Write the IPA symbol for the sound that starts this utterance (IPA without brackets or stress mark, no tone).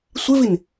sʷ